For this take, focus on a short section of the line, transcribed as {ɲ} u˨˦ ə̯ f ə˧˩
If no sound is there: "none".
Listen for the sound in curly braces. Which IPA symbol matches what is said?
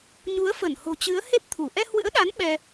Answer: ɲ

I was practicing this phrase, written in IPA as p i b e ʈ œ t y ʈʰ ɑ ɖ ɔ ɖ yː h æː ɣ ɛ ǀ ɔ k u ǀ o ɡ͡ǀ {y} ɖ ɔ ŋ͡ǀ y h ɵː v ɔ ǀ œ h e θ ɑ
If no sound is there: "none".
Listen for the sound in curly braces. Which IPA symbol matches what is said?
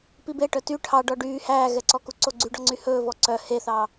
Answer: y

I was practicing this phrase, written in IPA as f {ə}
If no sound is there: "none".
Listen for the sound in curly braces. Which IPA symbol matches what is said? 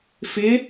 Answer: ɪ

